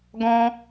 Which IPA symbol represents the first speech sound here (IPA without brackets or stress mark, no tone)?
ɡ